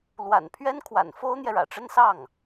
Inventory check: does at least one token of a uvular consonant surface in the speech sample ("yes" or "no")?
no